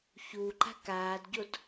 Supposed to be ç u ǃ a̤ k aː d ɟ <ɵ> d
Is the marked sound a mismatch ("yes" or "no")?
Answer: yes